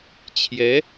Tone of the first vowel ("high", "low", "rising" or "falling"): rising